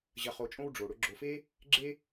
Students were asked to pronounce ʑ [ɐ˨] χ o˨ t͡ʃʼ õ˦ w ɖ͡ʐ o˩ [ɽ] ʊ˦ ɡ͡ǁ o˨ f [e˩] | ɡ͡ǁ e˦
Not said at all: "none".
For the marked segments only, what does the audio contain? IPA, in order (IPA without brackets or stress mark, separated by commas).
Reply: ɐ˨, ɽ, e˥